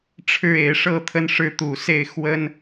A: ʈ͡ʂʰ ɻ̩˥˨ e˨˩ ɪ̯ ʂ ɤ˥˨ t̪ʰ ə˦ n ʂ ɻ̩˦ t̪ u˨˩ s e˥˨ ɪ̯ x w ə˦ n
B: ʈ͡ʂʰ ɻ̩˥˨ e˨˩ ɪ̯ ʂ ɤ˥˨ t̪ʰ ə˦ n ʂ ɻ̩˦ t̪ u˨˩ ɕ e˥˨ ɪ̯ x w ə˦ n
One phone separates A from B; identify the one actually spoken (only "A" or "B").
A